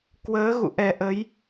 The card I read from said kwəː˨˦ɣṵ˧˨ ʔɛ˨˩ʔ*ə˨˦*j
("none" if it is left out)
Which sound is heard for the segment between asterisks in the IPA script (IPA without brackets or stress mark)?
ə˨˦